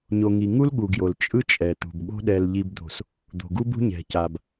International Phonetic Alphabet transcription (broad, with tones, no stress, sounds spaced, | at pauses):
ɲ o˨ ŋ i˨ ŋ u˦ l ɠ u˨ ɡ j o˨ l t͡ʃʼ ɯ˦ t͡ʃʼ ɛ˨ t̪ ṳ˨ b ɠ o̤˦ ɗ ɛ˨ l ʎ i˨ b d̪ o̤˨ s | d̪ o̤˨ ɡ u˦ b ṳ˦ ɲ ɛ̤˨ c a˨ b